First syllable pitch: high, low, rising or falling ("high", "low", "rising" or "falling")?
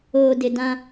low